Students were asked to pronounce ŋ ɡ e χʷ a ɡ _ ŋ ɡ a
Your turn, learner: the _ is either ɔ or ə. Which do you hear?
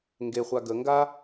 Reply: ə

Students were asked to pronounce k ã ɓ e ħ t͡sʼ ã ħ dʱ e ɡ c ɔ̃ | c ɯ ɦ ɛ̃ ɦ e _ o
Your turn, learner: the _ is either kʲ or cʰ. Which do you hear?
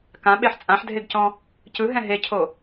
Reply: cʰ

